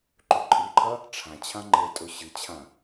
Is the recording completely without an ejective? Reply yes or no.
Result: no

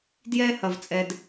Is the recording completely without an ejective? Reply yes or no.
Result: no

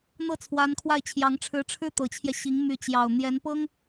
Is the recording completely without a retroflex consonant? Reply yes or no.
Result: no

